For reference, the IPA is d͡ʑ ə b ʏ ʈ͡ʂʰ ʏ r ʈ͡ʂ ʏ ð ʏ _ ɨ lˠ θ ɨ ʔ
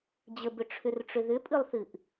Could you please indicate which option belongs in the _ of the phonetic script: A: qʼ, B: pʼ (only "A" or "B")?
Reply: B